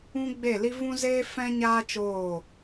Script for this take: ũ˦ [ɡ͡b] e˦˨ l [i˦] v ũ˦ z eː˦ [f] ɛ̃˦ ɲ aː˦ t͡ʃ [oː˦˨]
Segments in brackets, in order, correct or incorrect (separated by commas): correct, correct, correct, correct